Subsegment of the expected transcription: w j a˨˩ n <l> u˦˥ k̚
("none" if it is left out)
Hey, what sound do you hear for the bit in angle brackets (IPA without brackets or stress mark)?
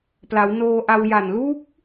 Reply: l